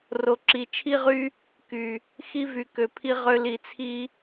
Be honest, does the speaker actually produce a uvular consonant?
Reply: yes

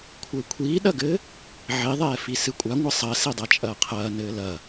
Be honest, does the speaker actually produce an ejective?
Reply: yes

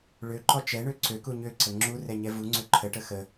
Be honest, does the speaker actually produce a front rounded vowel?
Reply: yes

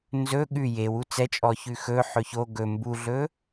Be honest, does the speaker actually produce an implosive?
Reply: yes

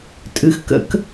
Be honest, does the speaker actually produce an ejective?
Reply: yes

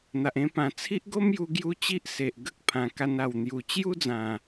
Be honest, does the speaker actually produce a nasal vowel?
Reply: yes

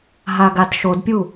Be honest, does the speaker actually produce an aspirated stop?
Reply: no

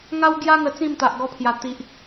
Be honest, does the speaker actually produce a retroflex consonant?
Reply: no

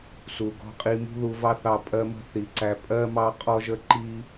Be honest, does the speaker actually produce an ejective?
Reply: yes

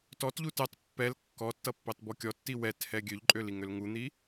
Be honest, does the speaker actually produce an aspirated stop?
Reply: no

